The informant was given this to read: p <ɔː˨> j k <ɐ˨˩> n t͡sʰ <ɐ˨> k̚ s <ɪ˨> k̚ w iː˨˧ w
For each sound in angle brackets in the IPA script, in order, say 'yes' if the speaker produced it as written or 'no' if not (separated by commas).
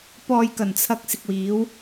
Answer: yes, yes, yes, yes